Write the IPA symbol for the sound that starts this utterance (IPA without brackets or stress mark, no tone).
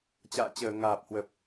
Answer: t͡ɕ